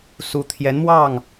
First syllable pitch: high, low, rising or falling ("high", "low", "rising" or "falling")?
rising